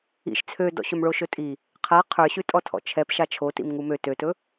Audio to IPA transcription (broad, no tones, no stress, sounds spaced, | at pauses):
ḭ ʃ t͡sʰ ø d ɔ̰ ɕ ɵ m ɭ o ʃ ɵ tʼ i | qʰ a qʰ ə˞ ɕ ʉ tʼ ɔ tʰ ɔ̰ t͡ʃʰ ɛ p ʃ a t͡ʃʰ o t ḭ m ŋ u m ø t ø t ɵ